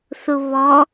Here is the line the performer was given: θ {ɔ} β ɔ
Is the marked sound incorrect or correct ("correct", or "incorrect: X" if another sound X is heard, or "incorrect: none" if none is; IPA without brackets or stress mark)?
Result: incorrect: ʊ